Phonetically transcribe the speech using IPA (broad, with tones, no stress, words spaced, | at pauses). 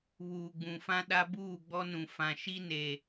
βuː˨ɡ͡bũ˨fã˦ ɗa˦buː˦˨ ɡ͡bɔ˦nũ˨ fã˨ʃi˦ne˨